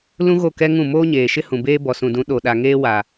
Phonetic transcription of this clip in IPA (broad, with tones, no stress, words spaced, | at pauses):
lũ˦ɣo˦˨kɛ˦ŋũ˦˨ moː˦ɲeː˨ ʃɪ˦hũ˨beː˦ bɔ˨sũ˨dũ˨˦ ɗo˨ɗa˨ ŋeː˦wa˨